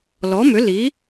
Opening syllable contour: rising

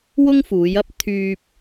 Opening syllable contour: high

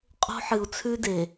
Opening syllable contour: high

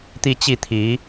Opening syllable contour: falling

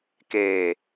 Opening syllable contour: low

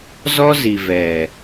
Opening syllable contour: high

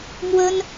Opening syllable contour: high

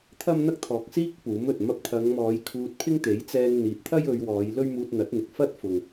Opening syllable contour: high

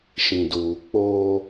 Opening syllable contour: low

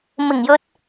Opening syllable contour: low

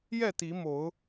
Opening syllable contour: falling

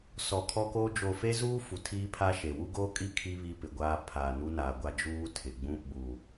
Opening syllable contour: low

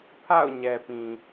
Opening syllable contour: falling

